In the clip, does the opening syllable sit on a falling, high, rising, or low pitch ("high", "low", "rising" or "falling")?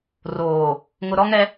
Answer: low